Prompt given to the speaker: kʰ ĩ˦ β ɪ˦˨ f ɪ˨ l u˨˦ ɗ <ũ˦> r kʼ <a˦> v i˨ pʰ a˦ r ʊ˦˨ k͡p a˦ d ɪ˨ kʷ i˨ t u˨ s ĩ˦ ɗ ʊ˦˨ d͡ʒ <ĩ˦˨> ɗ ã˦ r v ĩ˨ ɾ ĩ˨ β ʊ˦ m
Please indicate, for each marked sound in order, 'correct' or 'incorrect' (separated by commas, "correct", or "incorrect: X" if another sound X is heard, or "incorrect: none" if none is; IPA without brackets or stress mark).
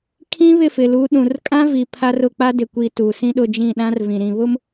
incorrect: ũ˨, incorrect: ã˦, correct